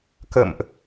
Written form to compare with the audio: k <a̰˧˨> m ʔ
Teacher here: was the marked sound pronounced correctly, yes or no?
no